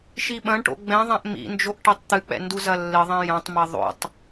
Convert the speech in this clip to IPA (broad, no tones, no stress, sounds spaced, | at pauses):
ʃ i ɓ ɐ̃ ɳ ʈ o̰ ɡ͡b ɛ̃ ðˤ ɛ̃ ʔ m ḭ n d͡ʒ o ʔ ʈ e tˤ t̪ ɨ k͡p ɛ̰ n d u z ɐ lː ɘ ðˤ ɛ̃ j ɐ̃ tˤ m ɐ ðˤ o̰ tˤ